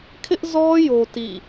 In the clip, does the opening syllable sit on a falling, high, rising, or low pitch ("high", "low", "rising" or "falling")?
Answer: high